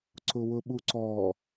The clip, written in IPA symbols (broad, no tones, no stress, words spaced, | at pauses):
ǀʊwʊɓuǀɔ